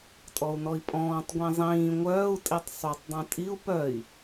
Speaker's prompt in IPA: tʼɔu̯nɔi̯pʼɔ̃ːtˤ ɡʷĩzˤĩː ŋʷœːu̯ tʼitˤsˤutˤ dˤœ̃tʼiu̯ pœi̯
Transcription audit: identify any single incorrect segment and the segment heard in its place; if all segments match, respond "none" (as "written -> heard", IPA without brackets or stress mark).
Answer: none